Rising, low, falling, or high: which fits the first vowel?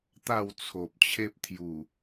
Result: falling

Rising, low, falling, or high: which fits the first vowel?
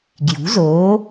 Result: rising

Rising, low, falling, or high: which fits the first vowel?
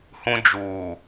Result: high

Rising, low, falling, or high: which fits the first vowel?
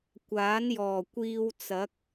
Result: rising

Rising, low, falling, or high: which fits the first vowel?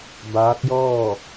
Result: rising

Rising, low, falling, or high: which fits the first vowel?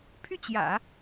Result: falling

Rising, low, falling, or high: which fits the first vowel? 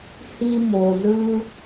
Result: high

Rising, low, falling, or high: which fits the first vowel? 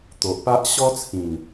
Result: low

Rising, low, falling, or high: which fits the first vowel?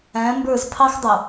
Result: rising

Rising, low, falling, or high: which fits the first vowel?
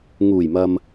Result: low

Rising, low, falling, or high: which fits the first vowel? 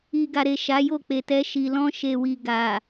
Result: low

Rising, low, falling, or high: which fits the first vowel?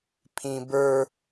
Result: high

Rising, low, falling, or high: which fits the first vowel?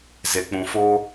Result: low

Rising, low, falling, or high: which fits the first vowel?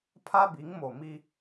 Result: high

